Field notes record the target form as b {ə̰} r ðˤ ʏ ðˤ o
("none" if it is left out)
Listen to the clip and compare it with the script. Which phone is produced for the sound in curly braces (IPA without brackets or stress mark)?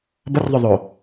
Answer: ə